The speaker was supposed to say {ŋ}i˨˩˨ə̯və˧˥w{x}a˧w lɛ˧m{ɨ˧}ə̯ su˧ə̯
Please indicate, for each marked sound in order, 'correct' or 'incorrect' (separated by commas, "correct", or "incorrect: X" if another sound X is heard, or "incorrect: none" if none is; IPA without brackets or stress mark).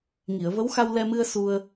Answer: correct, correct, correct